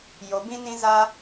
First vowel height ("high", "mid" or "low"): mid